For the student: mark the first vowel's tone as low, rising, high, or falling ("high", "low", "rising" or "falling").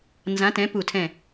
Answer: rising